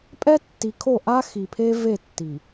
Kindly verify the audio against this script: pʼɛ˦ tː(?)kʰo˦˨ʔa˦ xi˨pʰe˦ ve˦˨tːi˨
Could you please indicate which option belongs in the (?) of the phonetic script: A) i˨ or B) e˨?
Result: A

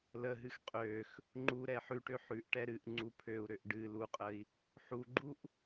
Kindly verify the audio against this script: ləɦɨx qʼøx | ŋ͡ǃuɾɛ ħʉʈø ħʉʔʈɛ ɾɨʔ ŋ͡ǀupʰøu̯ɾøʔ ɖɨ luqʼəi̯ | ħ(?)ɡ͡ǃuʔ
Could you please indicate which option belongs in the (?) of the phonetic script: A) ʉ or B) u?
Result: B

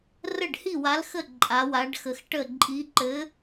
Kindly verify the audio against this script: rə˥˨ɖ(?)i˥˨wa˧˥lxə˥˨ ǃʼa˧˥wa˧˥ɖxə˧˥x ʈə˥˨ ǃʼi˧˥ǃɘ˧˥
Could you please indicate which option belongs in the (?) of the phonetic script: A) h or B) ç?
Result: A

